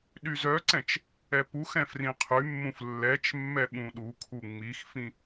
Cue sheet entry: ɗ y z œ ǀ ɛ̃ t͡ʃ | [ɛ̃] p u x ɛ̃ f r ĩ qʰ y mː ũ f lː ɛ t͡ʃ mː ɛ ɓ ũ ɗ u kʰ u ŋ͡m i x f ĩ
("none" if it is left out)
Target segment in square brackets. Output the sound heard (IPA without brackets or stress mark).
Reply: ɛ